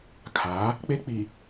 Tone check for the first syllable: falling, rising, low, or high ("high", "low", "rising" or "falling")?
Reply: rising